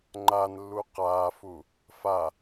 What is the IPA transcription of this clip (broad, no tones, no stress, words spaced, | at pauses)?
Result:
ŋ͡ǃanlːu qaːfu | fa